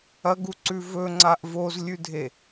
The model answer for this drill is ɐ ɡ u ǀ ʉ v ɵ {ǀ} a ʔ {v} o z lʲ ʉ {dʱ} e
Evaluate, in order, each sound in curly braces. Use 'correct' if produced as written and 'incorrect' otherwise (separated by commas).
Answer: incorrect, correct, correct